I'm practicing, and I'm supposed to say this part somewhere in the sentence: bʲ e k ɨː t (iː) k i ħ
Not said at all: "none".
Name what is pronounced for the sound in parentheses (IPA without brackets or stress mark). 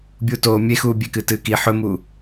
ɨː